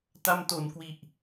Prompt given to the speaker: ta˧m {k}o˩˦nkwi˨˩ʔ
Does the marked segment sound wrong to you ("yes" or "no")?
yes